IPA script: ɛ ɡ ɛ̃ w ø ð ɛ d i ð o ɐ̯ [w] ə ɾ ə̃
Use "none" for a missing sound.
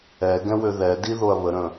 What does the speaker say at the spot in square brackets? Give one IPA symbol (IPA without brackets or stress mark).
β